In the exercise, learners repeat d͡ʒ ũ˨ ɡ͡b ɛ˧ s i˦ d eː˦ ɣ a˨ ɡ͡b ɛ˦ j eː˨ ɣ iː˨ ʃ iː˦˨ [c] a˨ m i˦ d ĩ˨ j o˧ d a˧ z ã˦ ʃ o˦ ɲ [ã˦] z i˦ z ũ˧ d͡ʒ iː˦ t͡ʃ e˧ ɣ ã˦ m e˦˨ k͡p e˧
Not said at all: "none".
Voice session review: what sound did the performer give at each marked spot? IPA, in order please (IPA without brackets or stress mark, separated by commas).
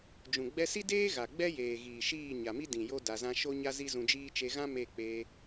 ɲ, a˦